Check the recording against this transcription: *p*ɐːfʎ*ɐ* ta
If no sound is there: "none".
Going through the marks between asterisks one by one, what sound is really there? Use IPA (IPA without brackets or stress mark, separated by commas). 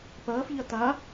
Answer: p, ɐ